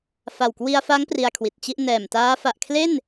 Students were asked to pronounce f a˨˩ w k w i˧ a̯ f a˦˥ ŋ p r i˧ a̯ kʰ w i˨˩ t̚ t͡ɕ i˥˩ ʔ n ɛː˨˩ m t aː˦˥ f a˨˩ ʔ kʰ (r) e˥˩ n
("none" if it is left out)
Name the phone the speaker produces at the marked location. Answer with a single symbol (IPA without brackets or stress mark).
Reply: l